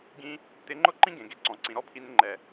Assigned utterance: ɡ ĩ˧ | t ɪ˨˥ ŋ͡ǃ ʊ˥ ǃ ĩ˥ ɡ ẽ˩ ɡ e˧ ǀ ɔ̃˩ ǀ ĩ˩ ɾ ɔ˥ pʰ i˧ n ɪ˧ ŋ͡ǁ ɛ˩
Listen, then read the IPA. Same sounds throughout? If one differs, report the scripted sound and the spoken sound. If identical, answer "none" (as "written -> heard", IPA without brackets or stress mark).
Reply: ŋ͡ǁ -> ŋ͡ǃ